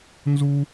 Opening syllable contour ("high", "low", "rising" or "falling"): high